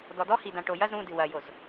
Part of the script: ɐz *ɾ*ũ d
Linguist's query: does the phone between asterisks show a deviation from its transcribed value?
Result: no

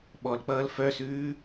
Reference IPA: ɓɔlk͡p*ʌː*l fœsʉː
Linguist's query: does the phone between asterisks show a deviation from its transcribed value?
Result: no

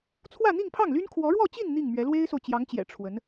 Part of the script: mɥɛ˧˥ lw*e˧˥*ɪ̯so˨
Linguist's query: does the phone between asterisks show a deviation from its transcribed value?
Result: yes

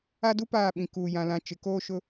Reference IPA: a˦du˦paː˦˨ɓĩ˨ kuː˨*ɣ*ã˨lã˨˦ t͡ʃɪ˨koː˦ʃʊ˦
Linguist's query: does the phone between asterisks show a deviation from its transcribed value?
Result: yes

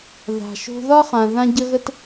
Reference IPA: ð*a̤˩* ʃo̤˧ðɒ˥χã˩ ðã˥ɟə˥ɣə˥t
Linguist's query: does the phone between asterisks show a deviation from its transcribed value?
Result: no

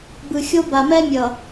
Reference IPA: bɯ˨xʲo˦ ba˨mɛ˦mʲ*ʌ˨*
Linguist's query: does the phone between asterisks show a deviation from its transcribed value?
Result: no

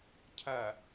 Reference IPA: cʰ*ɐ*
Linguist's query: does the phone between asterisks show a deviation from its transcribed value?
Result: no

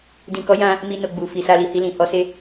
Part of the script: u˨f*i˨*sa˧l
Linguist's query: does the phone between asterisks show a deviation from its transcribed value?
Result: no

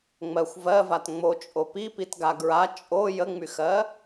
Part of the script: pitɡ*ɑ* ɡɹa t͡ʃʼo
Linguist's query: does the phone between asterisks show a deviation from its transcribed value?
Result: yes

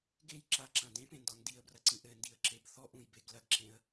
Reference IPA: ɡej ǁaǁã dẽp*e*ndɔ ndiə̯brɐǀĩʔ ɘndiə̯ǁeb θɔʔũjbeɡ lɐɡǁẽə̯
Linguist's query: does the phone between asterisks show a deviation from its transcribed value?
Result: yes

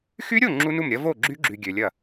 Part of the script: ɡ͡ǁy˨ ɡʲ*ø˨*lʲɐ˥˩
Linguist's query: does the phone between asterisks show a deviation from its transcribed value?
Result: no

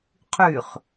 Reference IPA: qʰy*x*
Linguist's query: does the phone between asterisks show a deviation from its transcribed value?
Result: yes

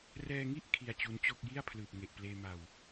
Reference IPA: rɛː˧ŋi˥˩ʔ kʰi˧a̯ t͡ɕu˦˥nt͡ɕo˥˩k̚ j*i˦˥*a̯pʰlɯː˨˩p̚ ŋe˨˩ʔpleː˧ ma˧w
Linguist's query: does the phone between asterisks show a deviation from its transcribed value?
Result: yes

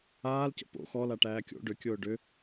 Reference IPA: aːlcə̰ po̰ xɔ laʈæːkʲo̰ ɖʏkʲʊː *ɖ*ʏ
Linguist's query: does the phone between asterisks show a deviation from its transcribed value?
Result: no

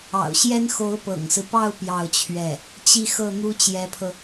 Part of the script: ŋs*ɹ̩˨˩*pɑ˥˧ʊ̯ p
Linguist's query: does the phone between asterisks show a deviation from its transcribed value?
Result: yes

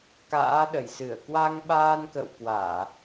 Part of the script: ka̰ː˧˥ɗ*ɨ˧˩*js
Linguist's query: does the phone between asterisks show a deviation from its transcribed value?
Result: yes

